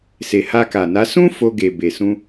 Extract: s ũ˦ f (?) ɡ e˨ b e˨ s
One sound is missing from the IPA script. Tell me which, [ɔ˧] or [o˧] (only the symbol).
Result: o˧